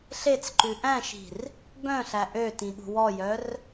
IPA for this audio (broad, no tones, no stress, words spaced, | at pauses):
ɬet͡sǃʉ ʔæ̃ʃi̤r | bœ̃ɬæ ʔøtĩɠṳ wɔjœr